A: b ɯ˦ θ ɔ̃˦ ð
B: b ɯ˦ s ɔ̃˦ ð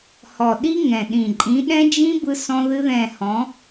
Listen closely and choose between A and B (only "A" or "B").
B